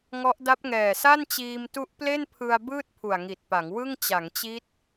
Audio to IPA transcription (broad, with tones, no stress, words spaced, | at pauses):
ŋɔ˦˥ʔ da˦˥p̚ŋɛː˨˩ sa˥˩nt͡ɕiː˧m tu˦˥ʔple˥˩npʰɯ˧a̯ bɯː˥˩t̚pʰu˨˩a̯ŋi˨˩t̚pa˩˦ŋ wɯ˥˩ŋ t͡ɕa˩˦ŋt͡ɕi˦˥t̚